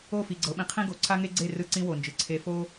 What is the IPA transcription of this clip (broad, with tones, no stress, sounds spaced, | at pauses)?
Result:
o˦˨ f i˨ ɡ͡ǀ ɤ˨˦ ɓ ĩ˨ qʰ ĩ˦ ɡ o˨ ǀʰ a˦ ŋ e˦ ɡ͡ǀ e˦˨ r ɯ˦ ǀ ĩ˦ w o˨ n d͡ʒ ɯ˨ ǀʰ e˨ f o˦